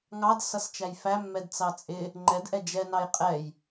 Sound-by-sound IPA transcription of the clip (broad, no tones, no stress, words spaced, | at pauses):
ŋɑd sʌst͡ʃæjfæmːɛd t͡sɑt͡sʼɪ | ŋ͡ǃɛdʔɛ d͡ʒɛnɑj qʼɛj